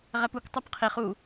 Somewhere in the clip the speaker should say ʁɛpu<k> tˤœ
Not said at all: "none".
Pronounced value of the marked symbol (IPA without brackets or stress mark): k